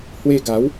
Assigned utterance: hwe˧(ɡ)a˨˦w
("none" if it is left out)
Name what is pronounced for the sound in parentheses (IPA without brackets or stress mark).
ɡ